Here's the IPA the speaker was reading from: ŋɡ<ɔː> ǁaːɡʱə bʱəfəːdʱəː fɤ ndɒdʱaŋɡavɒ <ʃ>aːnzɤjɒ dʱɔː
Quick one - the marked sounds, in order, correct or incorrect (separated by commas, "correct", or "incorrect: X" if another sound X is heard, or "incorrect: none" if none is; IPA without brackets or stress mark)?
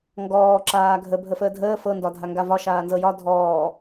correct, correct